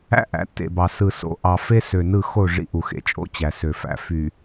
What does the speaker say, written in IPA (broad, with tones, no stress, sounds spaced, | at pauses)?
æ̰˦ ʔ æ̰˨ tː ḛ˨ b ɑ˨ s ɯ˨ s o̰˨ ʔ ɑ˨ f e˦ s ø˨ n ɯ˦˨ x o˦˨ ʐ ḭ˦ ʔ u˨ x ḛ˨ t͡ʃʼ o̰˦ t͡ɕ æ˨ s ø˨ f æ̰˨ f y˨